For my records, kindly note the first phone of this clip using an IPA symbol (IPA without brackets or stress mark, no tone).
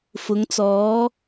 f